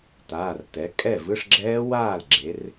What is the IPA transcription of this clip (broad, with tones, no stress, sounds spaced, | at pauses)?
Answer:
t aː˩˧˩ r t ɛ˩˥ kʼ ɛ˥˩ v ɯ˧˥˧ ʂ ɡ͡ǁ ɛː˦˥ w aː˥˩ l ɡ͡ǁ e˩˧ r